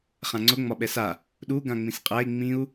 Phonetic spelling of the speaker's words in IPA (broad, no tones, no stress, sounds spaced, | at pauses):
χ ã ŋ͡ǀ ʊ ŋ͡m ɒ ɓ ɛ s a | ɗ u ɡ ã ŋ͡m ĩ s qʼ æ i̯ ŋ͡m ĩ u̯